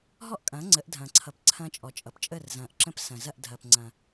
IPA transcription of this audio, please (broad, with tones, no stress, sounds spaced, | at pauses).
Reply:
ɦ ɔ˥ ʔ kʼ ɐ̃ː˩˥ ŋ͡ǀ ə˩˥ ʔ dʱ ɐ̃ː˩ ǀʰ ʌ˩ p ǀʰ ɐ̃ː˧ t͡ʃʼ ɔ˩ t͡ʃʼ ʌ˩ p t͡ʃʼ əː˥˩ r z ɐ̃ː˩ ʔ ǁ ə̃˥ p s ɐ̃˩ z ɐ˥˩ ʔ dʱ ɐː˩ p ŋ͡ǀ ɐ̃˩